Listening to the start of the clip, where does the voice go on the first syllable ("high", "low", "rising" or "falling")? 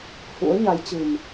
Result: rising